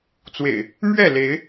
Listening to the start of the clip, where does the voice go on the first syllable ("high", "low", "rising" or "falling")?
low